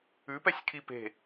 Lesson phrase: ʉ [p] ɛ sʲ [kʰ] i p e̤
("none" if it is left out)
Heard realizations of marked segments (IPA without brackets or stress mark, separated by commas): p, kʰ